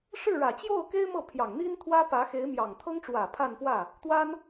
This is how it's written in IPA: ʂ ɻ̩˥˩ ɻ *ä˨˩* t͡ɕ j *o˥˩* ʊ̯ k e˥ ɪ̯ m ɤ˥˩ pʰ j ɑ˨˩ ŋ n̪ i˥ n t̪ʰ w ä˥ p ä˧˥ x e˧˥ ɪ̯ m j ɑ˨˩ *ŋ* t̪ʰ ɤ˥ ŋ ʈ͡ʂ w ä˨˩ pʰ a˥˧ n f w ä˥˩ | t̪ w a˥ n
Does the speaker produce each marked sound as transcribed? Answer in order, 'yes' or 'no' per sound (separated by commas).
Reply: yes, yes, yes